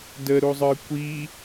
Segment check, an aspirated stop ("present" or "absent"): absent